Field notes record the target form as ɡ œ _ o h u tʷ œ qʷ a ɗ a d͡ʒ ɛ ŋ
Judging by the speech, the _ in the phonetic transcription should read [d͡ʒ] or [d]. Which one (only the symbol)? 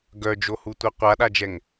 d͡ʒ